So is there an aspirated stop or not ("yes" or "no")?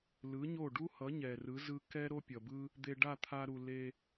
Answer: yes